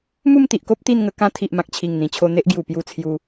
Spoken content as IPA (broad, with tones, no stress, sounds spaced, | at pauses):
m u˥˧ m t̪ i˨ ʔ k o˦ p̚ t̪ i˥˧ n ŋ ə˧ k ã˦ t̪ʰ i˨ ʔ m ã˨ k̚ t͡ɕʰ i˨˩ ŋ n̪ ĩ˨˩ t͡ɕʰ o˧ n̪ e˦ ʔ ɡ j u˨˩ p j u˧ t͡sʰ j u˧